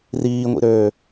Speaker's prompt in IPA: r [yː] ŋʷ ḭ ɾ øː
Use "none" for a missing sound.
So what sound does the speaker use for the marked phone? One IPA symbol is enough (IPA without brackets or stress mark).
iː